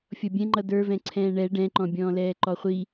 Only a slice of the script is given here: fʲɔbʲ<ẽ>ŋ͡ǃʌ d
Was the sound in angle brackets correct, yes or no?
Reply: no